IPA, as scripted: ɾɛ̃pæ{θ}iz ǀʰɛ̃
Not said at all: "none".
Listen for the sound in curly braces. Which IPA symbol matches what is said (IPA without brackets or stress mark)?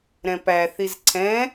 θ